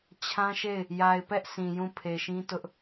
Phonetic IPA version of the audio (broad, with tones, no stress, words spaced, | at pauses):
t͡ɕʰã˦ʃe˦˨ɪ̯ | ja˨ɪ̯pɛ˦ʔ sʰĩ˨jũ˦˨ pʰe˨ʃĩ˦tʊ˦ʔ